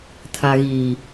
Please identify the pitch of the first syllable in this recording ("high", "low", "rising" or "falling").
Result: low